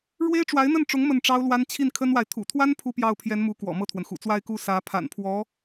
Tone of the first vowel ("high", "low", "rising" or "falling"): high